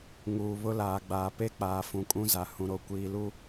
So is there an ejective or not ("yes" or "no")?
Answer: yes